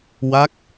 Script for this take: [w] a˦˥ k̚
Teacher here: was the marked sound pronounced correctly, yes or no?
yes